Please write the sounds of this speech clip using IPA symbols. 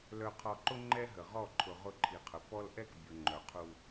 lœ˨qʰɔ˨ǃʊ˦ ŋ͡ǃɛ˦ɦə˨ ʁɔ˦˨ǃʰʊ˨ ʁʊ˦ǃʰi˨qʰʊ˨ pɔ˦l ʔɛ˦kbʲʊ˨ ŋ͡ǃœ˨qʰu˦

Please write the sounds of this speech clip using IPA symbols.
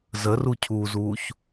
zərucʰuːzuːç

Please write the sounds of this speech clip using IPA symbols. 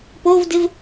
povdɪv

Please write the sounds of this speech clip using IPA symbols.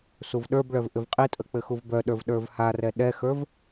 suvɗə˞bɭœv ʔʏvqʼitʼə k͡pɘxuvbœɗə˞v ɗə˞vharɛ ɗɛxə˞v

